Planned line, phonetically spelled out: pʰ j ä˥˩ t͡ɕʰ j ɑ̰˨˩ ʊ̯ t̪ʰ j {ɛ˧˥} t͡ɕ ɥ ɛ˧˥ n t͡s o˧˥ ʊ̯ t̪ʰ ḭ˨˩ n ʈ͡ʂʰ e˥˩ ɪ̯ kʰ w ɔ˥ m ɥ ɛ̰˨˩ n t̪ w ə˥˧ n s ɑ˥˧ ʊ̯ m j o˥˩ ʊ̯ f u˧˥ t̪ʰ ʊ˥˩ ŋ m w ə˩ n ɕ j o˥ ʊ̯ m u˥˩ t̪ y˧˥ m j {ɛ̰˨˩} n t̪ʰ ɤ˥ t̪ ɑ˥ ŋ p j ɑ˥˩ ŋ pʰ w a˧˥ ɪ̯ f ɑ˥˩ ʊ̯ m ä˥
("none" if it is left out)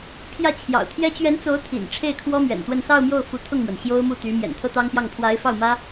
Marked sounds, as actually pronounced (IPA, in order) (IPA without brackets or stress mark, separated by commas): ɛ˥, ɛ̰˨˩